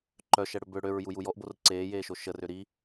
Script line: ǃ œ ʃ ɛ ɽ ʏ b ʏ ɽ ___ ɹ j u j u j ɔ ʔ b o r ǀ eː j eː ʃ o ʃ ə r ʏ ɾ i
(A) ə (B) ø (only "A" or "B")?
B